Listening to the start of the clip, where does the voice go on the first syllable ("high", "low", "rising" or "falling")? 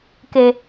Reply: low